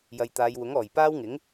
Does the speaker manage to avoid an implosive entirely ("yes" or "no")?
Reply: yes